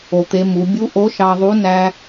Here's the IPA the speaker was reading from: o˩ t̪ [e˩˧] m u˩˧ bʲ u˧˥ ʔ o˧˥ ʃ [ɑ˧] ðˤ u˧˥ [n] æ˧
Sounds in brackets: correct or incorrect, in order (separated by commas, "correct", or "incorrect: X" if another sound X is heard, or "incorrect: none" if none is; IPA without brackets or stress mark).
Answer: correct, correct, correct